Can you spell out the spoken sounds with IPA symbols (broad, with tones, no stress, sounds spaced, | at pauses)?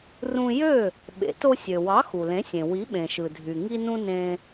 r ũ˧ j ø˥˩ | ɓ ḛ˩˥ t o˧ sʲ ø˩ w ɑ˩˥ x u˩ l ẽ˩˥ sʲ ẽ˩ w i˩˥ ɓ ẽ˩ ʃ ɯ˩ dʱ y˩ ŋ i˧ n ũ˧ n ẽ˧